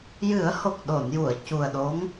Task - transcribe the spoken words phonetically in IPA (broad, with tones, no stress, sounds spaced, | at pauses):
j ɨ˨˩˦ ə̯ h o˨˩ k̚ ɗ o˨˩˨ n j u˨˩˨ ə̯ c u˨˩ ə̯ ɗ o˧˥ ŋ